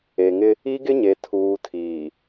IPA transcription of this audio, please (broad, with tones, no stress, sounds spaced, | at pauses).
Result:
e˨ ŋ ɪ˦ | i˦ ɡ ɪ˦ ɲ e˨ tʰ uː˨ tʰ iː˨